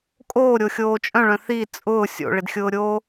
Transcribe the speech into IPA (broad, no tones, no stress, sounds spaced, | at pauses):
kʼ oː ɾʲ o xʲ oː t͡ʃʼ œ̃ ɭ œ̃ θ i t͡sʼ ʊː sʲ o̰ ɭ ɪ d xʲ ʊː ɾʲ oː